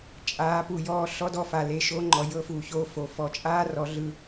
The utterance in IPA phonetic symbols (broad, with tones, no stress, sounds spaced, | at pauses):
t͡ʃʼ aː˨˦ p u˨ j ɔː˧ ɬ ɔ˦ d ɔ˧ f a˨ l e˦˨ ʃ oː˦ ŋ͡ǃ ɔ˨ j ɤ˦ f uː˨ ç oː˦ f o˨ f ɔ˨ t͡ʃʼ aː˦ r ɔ˨˦ ɮ ɯ˧